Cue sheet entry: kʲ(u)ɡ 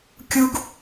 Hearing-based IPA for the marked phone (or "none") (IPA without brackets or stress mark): u